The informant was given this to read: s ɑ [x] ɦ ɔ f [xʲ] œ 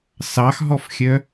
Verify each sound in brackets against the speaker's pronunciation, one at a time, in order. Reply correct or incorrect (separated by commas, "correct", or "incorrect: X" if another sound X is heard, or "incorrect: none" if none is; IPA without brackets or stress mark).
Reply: correct, correct